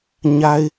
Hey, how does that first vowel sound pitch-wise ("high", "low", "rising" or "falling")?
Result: high